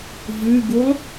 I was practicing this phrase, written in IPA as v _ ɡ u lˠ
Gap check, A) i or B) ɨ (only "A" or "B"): B